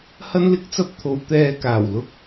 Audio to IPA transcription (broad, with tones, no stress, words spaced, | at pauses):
hɐ˥nlɪ˥k̚t͡sɐ˥p̚t̪ʰo˨˧w t̪ɛː˧kaː˨˩wlʊ˥k̚